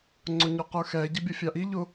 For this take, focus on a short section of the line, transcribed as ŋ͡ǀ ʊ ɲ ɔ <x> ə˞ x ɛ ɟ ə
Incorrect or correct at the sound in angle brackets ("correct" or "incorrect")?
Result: incorrect